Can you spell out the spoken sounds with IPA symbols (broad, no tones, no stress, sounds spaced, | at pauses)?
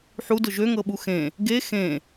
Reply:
ħ u d ʊ ʒ ø ŋ ɤ ɓ u x ẽ | ɡ e x ẽ